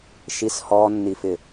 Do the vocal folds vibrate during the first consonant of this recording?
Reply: no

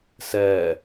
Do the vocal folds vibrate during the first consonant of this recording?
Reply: no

